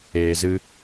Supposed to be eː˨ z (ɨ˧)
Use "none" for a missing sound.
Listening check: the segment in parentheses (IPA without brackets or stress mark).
ɨ˧